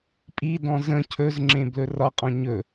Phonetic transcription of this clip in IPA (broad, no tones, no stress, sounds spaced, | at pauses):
pʼ i d ɔ̃ z ə̃ cʰ ɵ z ŋ͡ǁ ẽ b l ɵ r ɒ qʼ ɔ̃ ɲ ɵ